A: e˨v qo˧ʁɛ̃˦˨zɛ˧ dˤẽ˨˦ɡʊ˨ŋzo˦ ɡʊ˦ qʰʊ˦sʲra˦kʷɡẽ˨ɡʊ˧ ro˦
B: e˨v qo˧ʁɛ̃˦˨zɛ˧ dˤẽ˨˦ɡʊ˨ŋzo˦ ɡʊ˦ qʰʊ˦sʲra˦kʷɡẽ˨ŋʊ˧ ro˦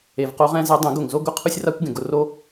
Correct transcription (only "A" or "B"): A